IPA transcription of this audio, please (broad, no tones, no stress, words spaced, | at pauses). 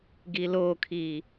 ɡilokʰi